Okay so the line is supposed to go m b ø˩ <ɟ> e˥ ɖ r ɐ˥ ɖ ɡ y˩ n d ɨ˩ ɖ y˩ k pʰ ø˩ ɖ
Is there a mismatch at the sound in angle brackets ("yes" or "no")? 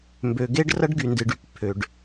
yes